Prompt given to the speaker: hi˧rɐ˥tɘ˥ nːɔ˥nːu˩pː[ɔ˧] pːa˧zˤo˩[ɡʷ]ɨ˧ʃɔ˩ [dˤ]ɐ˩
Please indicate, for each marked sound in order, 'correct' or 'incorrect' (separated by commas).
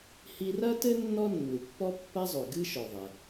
incorrect, incorrect, incorrect